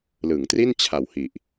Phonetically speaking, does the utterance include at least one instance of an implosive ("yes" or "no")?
no